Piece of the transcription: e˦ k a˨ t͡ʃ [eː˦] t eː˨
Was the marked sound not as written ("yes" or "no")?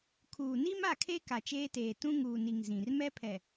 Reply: no